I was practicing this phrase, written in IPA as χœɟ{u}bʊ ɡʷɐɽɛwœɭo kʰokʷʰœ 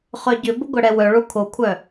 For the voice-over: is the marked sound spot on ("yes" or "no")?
no